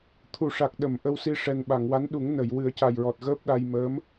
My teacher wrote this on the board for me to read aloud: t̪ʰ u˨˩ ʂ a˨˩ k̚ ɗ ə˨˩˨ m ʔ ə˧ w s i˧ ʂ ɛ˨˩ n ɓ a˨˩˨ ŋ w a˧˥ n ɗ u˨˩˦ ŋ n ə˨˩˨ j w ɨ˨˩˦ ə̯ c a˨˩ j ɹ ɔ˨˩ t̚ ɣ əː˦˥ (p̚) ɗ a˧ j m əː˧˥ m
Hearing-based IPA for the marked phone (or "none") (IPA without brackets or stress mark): p̚